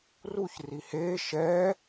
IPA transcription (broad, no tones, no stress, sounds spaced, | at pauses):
r u ç r i h eː ʃ ɛː